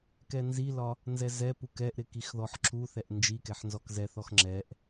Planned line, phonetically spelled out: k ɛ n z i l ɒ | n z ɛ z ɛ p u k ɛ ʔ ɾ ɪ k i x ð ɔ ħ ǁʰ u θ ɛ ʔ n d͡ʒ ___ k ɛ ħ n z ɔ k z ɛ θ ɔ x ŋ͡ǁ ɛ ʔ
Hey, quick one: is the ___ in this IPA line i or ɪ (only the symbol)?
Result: i